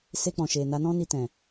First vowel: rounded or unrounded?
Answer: unrounded